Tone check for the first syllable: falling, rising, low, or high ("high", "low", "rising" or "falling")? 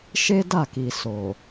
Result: high